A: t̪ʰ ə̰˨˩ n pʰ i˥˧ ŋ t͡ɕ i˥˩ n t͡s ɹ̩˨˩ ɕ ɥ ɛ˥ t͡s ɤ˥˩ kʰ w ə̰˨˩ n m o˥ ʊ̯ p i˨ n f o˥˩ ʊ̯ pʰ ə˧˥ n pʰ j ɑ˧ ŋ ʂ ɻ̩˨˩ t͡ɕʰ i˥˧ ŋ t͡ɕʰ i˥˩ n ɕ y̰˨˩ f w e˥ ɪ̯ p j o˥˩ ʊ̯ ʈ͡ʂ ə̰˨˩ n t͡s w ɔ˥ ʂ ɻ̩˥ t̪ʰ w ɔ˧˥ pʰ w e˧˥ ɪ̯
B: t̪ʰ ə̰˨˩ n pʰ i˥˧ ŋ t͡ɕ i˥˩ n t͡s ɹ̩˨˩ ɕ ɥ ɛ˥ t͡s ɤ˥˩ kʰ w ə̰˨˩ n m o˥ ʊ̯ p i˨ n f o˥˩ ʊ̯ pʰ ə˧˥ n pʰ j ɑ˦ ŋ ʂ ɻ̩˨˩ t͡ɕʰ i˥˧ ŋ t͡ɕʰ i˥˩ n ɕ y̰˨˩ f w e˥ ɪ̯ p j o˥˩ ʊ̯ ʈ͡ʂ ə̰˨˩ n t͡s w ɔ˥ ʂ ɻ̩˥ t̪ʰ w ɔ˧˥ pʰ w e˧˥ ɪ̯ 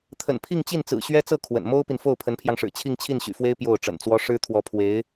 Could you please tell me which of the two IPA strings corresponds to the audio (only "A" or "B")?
A